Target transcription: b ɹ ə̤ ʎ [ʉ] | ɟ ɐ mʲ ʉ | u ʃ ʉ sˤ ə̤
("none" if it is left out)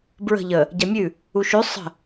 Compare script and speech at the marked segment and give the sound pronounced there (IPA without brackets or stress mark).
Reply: ə